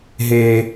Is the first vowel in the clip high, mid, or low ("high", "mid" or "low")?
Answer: mid